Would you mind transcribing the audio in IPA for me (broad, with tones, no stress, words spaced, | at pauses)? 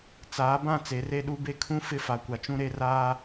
t͡saː˨˦bã˦˨ t͡se˨˦re˦ɗu˦be˦ kʰũ˦ fɪ˦fa˨kʷa˨t͡ʃũ˦ ɾe˦raː˦